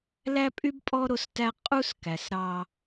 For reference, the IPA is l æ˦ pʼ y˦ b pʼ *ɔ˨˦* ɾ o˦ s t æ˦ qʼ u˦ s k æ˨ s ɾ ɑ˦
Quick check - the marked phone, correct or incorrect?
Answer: incorrect: ɔ˦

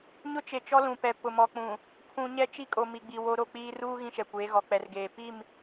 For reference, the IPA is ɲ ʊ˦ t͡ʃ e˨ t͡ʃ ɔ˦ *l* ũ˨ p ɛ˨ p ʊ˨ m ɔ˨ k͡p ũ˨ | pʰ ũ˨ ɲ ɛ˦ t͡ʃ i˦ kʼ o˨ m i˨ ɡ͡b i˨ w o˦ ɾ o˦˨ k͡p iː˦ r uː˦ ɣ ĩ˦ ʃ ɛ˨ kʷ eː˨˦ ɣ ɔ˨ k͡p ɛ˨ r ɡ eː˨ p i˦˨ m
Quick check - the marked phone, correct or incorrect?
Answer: correct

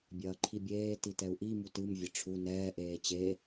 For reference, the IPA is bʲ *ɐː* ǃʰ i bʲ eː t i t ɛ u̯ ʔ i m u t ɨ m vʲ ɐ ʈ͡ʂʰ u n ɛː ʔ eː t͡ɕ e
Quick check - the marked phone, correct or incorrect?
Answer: correct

